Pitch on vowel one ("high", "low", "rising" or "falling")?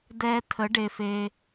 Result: high